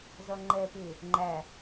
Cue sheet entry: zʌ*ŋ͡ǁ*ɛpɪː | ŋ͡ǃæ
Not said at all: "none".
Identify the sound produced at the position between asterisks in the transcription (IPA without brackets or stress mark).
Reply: ŋ͡ǃ